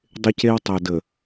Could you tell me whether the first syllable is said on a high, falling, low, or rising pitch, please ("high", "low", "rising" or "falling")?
high